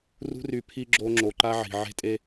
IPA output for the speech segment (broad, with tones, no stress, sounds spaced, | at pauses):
r ṳ˦ r y˨ pʰ i˦ ɡ͡ǁ o˦ ŋ͡ǁ o˨ ǃ a˦ ʕ i̤˨ ʕ e̤˦ tʼ e˦